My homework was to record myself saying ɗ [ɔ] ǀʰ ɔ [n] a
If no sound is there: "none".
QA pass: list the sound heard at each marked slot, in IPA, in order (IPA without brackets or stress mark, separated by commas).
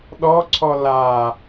ɔ, l